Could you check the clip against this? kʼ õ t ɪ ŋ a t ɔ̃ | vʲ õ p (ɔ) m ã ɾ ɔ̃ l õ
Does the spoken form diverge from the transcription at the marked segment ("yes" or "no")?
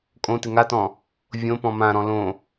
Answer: yes